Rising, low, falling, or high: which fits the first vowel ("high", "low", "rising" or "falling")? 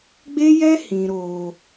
high